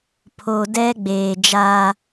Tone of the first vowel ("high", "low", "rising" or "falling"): low